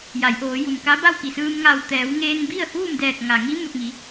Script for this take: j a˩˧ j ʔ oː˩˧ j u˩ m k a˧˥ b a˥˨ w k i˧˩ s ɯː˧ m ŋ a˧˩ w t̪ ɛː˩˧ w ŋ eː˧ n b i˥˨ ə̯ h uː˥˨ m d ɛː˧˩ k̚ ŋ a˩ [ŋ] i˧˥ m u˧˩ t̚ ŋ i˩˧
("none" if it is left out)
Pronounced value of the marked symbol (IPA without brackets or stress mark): ŋ